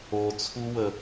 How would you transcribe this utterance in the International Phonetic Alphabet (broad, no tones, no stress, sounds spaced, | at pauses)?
o t͡sʰ u w ə